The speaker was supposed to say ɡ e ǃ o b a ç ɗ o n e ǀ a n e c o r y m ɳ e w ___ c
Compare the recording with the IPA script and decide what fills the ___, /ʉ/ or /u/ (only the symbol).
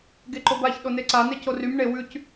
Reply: ʉ